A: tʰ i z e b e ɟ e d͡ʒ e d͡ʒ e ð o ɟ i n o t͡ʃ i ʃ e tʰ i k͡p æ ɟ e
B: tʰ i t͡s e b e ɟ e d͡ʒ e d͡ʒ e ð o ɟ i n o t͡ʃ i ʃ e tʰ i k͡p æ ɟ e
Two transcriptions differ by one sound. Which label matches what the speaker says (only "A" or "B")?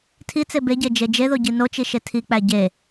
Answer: B